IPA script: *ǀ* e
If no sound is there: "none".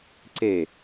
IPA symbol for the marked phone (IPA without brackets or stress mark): ǀ